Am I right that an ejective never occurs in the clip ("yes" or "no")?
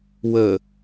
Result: yes